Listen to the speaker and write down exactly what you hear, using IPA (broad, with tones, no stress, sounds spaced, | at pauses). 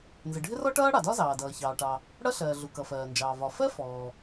n z ɪ˩ ɖʱ ɪ˥ r ɔ˥ ʈ ʌː˥ ɽ ɑ˩ d ɒ˥ z ɑː˩ d ʌː˩ ç ɑː˩ ʈ ɑ˩ | ɽ ʌ˥ ɬ ɜː˩ ɮ u˩ k ʌ˩ f ɜː˩ n d͡ʒ ɑː˩ v ɒ˩ f ɜ˥ f ɔː˩